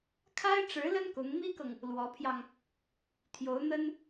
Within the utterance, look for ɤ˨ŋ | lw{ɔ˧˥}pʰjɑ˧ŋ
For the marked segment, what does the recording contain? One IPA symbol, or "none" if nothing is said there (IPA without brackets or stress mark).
ɔ˧˥